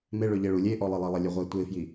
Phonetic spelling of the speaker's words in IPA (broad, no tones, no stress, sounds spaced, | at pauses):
m e ɭ ø ʎ e ɭ u lʲ e ʔ ɔ lˠ e lˠ ɛ lˠ ɛ lʲ ø ʁʷ ɛ tʷ e f j i